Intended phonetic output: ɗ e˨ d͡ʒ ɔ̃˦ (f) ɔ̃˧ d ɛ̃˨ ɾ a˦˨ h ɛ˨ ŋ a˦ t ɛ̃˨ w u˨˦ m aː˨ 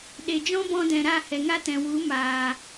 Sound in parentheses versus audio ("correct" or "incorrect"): incorrect